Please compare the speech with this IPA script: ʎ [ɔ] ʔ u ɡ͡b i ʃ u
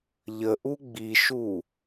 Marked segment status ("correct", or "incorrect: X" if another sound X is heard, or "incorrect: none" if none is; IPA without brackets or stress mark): incorrect: ə